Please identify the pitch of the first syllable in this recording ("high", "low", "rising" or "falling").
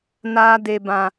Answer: high